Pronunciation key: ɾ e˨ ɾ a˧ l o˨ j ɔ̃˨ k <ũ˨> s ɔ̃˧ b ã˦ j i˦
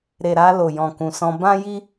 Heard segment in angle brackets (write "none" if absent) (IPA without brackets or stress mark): ũ˨